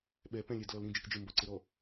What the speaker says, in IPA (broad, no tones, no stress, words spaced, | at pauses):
ɓɛ pɛ̃lʲæd lɔlɾĩ d͡ʒɪkd͡ʒɪ mbɔǀɪɾɔ